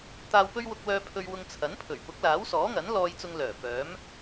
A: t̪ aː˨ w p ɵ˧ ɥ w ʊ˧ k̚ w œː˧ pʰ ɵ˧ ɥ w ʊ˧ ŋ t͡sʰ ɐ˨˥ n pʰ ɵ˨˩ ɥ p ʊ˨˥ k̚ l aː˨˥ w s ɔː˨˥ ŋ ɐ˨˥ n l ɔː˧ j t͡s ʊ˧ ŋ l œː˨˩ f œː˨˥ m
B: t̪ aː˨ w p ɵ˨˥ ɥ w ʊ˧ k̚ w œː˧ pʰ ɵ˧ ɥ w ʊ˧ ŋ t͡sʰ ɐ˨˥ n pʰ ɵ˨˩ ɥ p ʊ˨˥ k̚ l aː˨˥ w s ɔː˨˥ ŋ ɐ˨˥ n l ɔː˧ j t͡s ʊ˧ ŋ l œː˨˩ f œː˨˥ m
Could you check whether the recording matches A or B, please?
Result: A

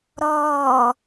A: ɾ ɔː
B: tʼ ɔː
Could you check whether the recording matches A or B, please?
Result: A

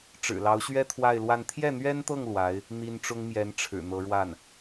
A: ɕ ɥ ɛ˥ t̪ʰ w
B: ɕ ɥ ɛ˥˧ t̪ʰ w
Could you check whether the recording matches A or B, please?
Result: A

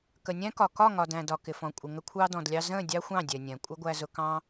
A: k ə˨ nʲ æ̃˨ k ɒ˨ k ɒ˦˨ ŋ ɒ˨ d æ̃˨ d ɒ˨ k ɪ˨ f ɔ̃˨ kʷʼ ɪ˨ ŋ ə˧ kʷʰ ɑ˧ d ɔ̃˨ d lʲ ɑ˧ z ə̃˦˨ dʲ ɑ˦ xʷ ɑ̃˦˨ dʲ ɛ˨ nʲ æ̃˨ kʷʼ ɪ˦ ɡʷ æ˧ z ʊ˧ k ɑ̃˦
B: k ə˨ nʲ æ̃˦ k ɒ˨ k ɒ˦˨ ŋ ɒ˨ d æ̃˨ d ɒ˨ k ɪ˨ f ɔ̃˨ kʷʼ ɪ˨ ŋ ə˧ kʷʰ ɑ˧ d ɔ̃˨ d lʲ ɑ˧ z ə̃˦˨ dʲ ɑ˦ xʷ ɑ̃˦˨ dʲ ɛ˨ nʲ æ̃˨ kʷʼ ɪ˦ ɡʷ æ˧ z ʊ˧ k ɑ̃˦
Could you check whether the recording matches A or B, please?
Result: B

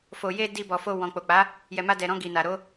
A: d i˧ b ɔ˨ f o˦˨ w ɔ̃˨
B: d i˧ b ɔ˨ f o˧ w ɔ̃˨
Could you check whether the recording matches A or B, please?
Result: B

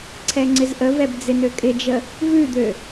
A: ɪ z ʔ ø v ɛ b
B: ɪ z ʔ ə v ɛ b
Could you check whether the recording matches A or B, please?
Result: B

